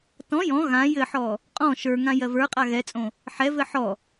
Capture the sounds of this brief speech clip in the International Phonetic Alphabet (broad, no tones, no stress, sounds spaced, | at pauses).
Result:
t ɔ̃ j ɔ̃ ɣ ã j ɘ ħ ɔ | qʼ ɔ̃ ʃ ə˞ ŋ ã j ɜ v ə˞ qʼ a ɣ ɛ t͡sʼ õ | ħ ɛ v ɘ ħ ɔ